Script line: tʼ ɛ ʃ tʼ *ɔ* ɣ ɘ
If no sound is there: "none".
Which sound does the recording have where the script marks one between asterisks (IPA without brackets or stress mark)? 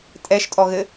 ɔ